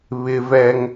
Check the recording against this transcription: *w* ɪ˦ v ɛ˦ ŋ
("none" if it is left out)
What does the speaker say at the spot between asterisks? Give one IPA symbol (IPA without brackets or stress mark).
β